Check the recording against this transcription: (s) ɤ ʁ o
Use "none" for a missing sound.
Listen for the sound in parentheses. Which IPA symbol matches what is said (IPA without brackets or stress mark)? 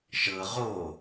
ʃ